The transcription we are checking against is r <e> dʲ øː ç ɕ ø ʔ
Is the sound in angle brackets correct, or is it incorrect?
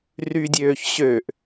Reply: incorrect